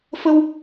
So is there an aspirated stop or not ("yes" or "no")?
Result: no